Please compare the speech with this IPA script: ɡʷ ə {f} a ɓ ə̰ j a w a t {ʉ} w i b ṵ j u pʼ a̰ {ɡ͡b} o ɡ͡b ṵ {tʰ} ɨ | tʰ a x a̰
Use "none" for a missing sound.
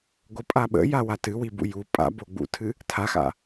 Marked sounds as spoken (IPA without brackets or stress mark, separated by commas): pʼ, ɨ, b, tʰ